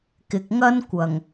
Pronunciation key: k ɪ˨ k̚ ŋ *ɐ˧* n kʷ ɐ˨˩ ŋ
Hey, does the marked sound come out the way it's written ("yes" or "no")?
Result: no